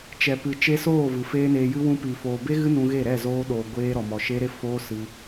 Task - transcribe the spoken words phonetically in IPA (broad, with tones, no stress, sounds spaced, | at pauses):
t͡ʃ ɛ˨ p ɨ˨ t͡ʃ e˧ s oː˦˨ v ɨ˨ f eː˦ n eː˧ j ɨ˦ w ũ˧ p i˨ f oː˨ b e˦ ɣ ɨ˦ n ũ˧ ɣ e˦˨ ɾ ɛ˦˨ z oː˧ ɗ oː˨ ɡʷ eː˧ ɾ ɔ˨ m ɔ˨ ʃ e˦ ɾ e˦ f oː˦ s ɨ˧